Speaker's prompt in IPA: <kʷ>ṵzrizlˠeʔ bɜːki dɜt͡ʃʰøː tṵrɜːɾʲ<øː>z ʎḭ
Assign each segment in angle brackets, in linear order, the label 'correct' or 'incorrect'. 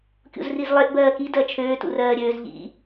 incorrect, correct

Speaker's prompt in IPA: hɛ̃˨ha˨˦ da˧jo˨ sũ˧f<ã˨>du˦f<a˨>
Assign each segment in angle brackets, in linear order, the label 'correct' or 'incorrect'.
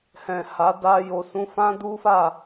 incorrect, incorrect

